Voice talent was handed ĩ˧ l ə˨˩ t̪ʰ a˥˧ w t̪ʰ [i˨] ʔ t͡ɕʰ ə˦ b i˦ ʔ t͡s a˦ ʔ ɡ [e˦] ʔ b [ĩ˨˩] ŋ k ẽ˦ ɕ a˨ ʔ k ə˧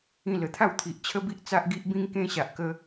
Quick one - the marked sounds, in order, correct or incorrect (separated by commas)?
correct, incorrect, incorrect